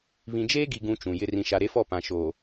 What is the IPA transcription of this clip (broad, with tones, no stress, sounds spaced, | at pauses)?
β ĩ˨ d͡ʒ eː˦ ɡ i˨ ɡ ũ˨ t͡ʃ ũ˨ j ɪ˦ r ĩ˨ ʃ a˨ ɾ e˦ f ɔ˦˨ p ã˨ ʃ oː˨